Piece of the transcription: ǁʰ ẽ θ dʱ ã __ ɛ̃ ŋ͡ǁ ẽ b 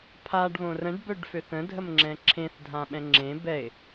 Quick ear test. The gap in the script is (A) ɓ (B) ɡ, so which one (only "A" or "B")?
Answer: A